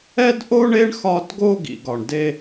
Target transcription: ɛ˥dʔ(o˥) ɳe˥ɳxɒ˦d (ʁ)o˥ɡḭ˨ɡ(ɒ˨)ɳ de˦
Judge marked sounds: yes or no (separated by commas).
yes, no, yes